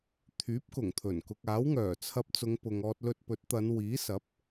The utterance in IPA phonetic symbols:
t̪ʰ yː˨˥ p̚ k ʊ˨˩ ŋ t̪ʰ ɵ˨˩ n k ʊ˨ k̚ aː˨˥ w ŋ œː˨˩ t͡sʰ ɐ˧ p̚ t͡s ʊ˨˧ ŋ p ʊ˨ ŋ ɔː˧ t̚ l ɵ˧ t̚ p ɵ˨˥ t̚ t̪ ɐ˨˧ n w iː˨˥ s ɐ˨˥ p̚

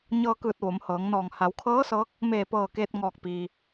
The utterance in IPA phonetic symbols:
ɲ ɤː˧ k ɯː˧˩ t̚ ʋ o˩˧ m h ɤː˩˧ ŋ n ɔː˧˩ ŋ h a˩˧ w kʰ ɤː˧˥ s ɤː˧˥ k̚ | m eː˧˩ p ɤː˧˩ k eː˧ t̚ ŋ ɔː˧˩ k̚ p iː˩

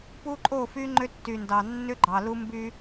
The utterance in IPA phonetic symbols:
p u˦ ǃʼ o˦˨ f y˦ ŋ͡ǃ ʏ˦ tː y˨ n d ɑ˨ nː ʏ˦ ɡ͡ǃ ɑ˨ l u˦ m b y˦

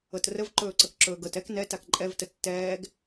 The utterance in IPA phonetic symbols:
ɤ t r ə v ǃ ɵː ǀ ə k ǁ ɵː ɡ ɤ t ɛ k n ɛ t a k ǃʼ ɛ v t ə tː ɛː ɡ

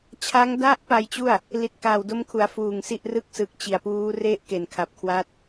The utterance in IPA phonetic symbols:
t͡ɕʰ a˦˥ ŋ d a˦˥ ʔ p a˧ j t͡ɕ u˥˩ a̯ | l i˨˩ t̚ k aː˨˩ w d o˦˥ m kʰ u˩˦ a̯ f uː˨˩ ŋ s i˥˩ ʔ r ɯ˦˥ k̚ s ɯ˨˩ k̚ t͡ɕ i˨˩ a̯ p uː˦˥ r e˥˩ ʔ k e˨˩ n kʰ a˨˩ p̚ kʰ w a˦˥ t̚

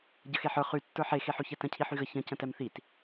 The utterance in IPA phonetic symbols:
ɟ ə x e ħ ə˞ χ y tː ə˞ ħ e x e ħ y ç ɛ t ə̃ cʰ i ħ y ɣ ə ç ə̃ c ə̃ t ɛ m θ i t

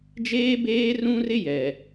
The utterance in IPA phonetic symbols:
d͡ʒ eː˦ b eː˦ r ũ˦ r ɪ˦ j ɛ˨

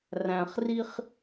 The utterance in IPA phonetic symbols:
r æ̃˨ χ r i˦ χ

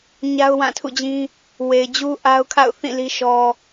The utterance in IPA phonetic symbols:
ɲ a˦ ʊ̯ w ã˦˨ tʰ ṵ˦˨ d͡ʑ ĩ˦ | w e˨ ɪ̯ d͡ʑ u˦ ʔ a˦ ʊ̯ kʰ a̰˦˨ ʊ̯ θ ĩ˦˨ l i˦ ʃ ɔ˦

